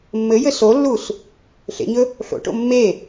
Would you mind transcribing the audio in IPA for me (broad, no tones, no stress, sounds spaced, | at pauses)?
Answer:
mː ɘ j ɘ s o lː u s | ɬ ḛ ɲ ɵ | ɬ o̰ ʈ o̰ mː e